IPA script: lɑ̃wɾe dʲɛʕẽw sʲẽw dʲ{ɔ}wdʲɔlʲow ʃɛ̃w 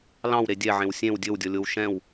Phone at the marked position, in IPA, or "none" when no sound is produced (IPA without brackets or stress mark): ɵ